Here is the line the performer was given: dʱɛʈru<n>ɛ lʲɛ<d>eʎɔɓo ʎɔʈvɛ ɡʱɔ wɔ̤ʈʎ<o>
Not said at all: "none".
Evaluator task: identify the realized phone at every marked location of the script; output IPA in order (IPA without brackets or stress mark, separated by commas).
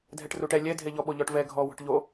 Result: ʈ, dʱ, o